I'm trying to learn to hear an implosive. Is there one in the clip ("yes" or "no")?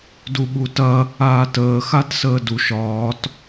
yes